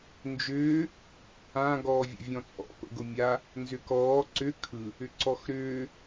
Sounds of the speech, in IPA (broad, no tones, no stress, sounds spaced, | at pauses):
n d͡ʒ ʏː | ã ɡ ɔː vʲ ə̰ vʲ ɔ̃ t͡sʼ ɔ̰ p ə̰ ɡ ʊ mʲ a | n z ʏ k ɔː ǀ ʏ kʰ ɯ | ʏ ǀ ɔ x ɾ ʏː